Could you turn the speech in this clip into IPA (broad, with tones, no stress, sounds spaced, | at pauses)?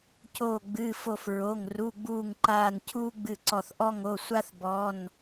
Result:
c oː˧˩ ɡ͡b ɨː˩˧˩ f o˧˩ f ɹ o˩˧˩ ŋ r u˩˧˩ ɡ͡b uː˧˩ ŋ ǃ aː˧˩ n cʰ uː˦ ɡ͡b ɨ˧˩ ǀ ɔ˧˩ θ ʔ ɔ˦ ŋ o˩˧˩ sʷ a˦ θ b ɔ˩˧˩ n